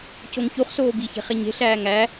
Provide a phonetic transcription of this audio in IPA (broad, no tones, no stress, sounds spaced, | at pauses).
c o ŋ ç u χ s oː b i ç e̤ χ e ɲ e̤ ɬ æː ŋ æ